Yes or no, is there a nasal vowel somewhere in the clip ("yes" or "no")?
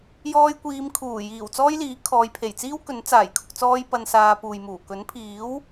no